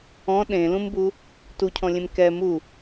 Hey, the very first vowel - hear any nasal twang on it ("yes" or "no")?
yes